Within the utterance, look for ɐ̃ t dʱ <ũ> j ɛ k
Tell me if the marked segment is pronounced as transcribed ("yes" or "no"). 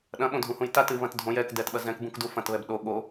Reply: no